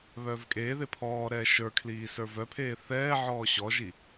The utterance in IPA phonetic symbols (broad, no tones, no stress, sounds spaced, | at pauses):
β œː v kʼ eː ð e pʰ ɔː ɾ ɛː ʃ ə˞ kʰ l iː s ə˞ v œ pʰ eː θ ɛː ʕ ɔː ɕ ɔ ʒ i